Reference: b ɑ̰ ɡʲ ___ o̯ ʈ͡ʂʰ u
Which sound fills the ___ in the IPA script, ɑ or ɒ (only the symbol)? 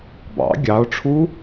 ɑ